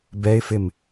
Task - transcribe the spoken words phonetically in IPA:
b ɛ ɪ̯ f ɪ m

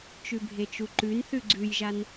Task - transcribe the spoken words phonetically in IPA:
t͡ʃ ʉ bʱ e t͡ʃ u ǃ ʉ n θ ʉ ɡ͡ǀ ʉ j ʒ a n

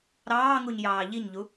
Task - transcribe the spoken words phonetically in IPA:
ɾ ɑː ŋ u ɲ j ɑː ʎ i ɲ ʎ u

